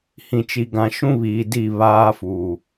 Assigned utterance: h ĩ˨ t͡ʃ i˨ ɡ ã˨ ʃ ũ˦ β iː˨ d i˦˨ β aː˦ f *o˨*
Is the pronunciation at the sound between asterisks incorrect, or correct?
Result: incorrect